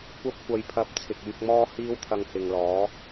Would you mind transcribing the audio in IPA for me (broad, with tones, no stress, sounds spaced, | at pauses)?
kʷ ɐ˧ p̚ kʷ ɐ˨ j pʰ ɐ˨˥ p̚ t͡sʰ ɪ˨ k̚ yː˧ k̚ m ɔː˥ h iː˥ w t̪ʰ ɐ˧ ŋ h ɪ˨ ŋ l ɔː˨˥